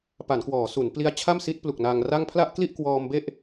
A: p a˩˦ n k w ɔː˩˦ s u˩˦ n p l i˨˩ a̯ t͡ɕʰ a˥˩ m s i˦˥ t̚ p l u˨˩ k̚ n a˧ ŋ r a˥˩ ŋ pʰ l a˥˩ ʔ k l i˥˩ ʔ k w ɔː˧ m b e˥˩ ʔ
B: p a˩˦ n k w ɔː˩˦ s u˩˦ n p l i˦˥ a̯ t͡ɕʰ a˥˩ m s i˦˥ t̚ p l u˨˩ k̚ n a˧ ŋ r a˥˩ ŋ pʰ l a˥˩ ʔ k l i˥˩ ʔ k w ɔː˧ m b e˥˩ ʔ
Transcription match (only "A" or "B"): B